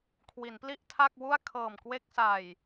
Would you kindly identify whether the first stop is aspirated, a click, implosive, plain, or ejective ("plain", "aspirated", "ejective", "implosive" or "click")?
aspirated